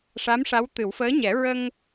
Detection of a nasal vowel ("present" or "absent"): absent